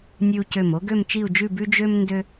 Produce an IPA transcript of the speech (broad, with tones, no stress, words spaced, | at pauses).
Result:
nʲʉ˧u̯cø˧˩mo˥ ɡø˥˧mt͡ʃi˥˧u̯d͡ʒʉ˥˧ bʉ˥ d͡ʒø˥m ndø˥